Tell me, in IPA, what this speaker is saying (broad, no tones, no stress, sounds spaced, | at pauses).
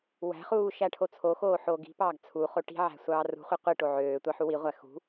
w æ̤ χ uː ʃ æ ʈʰ o t͡sʰ o x oː ħ oː ɡ i̤ p ɑː ɡ t͡sʰ u χ o ʈ i̤ ʕ æ̤ sʷ ɑː r ṳ χʷ e qʷ i ʈ o ʕ øː tʷ ɑ ħ u w i ʁʷ æ x ṳ